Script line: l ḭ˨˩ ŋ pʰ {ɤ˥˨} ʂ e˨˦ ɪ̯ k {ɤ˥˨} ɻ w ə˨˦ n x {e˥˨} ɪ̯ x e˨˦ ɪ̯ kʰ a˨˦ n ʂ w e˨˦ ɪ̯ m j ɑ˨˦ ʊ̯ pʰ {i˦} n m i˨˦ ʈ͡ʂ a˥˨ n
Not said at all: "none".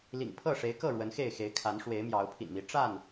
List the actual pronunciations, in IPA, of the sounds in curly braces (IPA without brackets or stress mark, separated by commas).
ɤ˥˨, ɤ˥˨, e˥˨, ḭ˨˩